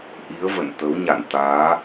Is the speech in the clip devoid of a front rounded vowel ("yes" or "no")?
yes